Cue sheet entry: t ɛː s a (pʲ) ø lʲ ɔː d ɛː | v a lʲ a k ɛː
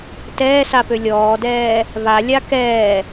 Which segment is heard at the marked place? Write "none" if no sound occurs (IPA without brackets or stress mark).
p